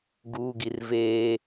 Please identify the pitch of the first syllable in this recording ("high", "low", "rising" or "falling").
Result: high